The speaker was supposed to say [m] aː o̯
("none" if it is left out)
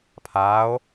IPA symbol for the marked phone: pʰ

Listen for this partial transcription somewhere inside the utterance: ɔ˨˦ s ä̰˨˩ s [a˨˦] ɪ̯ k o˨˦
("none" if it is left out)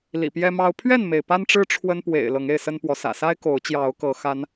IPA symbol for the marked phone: a˦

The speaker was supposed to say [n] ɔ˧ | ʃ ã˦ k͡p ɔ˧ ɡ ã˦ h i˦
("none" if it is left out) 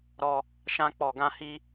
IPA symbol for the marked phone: ɾ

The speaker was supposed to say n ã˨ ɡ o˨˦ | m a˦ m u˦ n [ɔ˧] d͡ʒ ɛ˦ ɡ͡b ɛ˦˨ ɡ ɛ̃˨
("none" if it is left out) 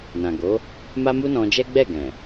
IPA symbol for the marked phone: ɔ̃˧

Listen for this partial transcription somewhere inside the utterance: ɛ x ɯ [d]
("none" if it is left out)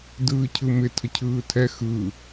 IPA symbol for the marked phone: none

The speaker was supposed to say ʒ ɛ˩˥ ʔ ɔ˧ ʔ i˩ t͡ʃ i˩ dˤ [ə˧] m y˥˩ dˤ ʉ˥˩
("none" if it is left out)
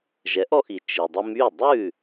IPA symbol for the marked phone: ə˧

